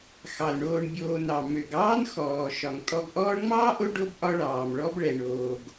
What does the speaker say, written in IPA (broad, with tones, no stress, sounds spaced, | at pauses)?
x ɑ˩ l ɳ oː˨ ɳ bʲ oː˨ n ɑ˩ m ø˩ ɡ ɑː˥ n x ɔː˩ ʃ ɒ˩ ŋ tʼ ɔ˨ ɡ ʔ ɔː˦ ɳ ŋ͡m ɑː˥ ʔ o˦ ɖ o˥ b ʔ ɒ˦ ɭ ɑː˩ m ɭ ɔ˦ b ɭ ɛ˩ ɳ oː˩ ɡ